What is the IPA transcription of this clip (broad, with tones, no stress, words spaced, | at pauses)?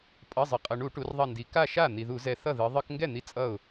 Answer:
pʼʌ˩˧˩zˤʌ˩qʼʌ˩ ɳu˧˩˧ʈu˩˧rðˤʌ˧˩ndi˩˧ ka˥˩ʃa˥˩ n̪i˩ðu˧˩˧zɛ˧˩ θʌ˥˩ ðɯ˩˧ ðˤɯ˧˩˧kŋɡɛ˥˩n̪i˧˩ t͡sʼʌ˥˩ʊ̯